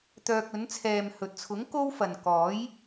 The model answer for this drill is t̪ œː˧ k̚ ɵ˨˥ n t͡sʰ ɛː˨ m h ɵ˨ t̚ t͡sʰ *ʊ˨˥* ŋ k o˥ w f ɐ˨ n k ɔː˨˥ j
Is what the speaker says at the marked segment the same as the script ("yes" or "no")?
yes